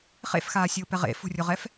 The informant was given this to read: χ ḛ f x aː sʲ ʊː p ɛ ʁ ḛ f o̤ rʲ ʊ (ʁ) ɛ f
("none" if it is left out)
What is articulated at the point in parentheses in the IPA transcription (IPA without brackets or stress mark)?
ʁ